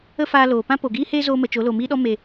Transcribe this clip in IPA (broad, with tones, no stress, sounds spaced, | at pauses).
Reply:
ə˦ f aː˧ l oː˨ p ã˦ p o˨ ɡ iː˦ h eː˦ z oː˧ m ə˨ t͡ʃ o˨˦ l o˨ m iː˦ ɗ ɔ˦ m e˨